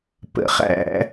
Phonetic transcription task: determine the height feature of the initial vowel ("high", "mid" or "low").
mid